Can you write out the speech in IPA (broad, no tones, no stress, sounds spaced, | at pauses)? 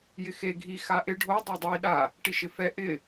j ɪ x e ɡʱ i x a ʔ ɪ ɖʱ o dˤ ɛ dˤ i ɗ a | ʈ i ʃ ɪ f ɛ ʔ ɪ